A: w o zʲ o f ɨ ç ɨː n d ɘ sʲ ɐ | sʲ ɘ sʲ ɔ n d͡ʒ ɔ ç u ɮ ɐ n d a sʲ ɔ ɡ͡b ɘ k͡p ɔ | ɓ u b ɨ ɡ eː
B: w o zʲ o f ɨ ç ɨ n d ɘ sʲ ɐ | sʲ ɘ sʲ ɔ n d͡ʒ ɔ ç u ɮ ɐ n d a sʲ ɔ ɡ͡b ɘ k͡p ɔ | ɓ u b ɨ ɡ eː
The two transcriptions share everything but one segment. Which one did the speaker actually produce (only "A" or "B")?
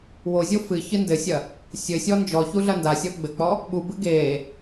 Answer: B